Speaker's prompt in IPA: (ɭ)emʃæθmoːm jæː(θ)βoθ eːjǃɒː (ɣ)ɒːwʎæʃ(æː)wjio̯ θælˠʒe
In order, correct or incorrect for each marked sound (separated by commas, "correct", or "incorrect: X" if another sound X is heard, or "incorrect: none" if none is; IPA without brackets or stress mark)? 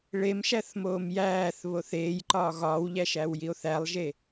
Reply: correct, correct, correct, correct